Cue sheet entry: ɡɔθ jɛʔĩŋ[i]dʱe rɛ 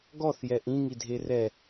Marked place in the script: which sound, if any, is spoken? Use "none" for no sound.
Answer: i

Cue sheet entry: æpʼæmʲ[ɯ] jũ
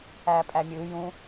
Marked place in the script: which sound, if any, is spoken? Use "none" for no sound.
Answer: ɯ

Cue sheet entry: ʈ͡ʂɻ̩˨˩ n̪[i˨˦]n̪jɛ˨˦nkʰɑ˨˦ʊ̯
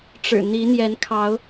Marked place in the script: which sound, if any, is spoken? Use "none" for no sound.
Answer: i˨˦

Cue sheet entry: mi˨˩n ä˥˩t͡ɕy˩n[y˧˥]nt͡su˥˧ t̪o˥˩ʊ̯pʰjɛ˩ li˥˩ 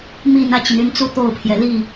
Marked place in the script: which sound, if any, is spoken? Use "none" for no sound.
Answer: y˧˥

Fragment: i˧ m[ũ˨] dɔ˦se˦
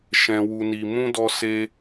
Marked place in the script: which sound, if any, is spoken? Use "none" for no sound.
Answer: ũ˦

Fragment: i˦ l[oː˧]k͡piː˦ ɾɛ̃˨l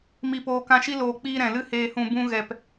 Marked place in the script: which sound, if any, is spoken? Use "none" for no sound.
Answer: oː˧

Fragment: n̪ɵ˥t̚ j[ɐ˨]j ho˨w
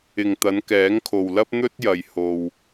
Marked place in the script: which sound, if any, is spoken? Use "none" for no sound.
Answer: ɐ˨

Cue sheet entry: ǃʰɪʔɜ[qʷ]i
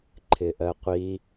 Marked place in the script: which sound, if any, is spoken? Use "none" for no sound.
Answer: qʷ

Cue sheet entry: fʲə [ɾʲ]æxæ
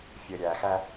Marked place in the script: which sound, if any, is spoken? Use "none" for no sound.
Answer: ɾʲ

